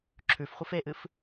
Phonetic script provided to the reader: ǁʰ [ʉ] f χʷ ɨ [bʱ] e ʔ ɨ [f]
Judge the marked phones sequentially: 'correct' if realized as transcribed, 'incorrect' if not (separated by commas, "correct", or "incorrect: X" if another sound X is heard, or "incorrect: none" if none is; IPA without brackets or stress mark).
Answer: correct, incorrect: f, correct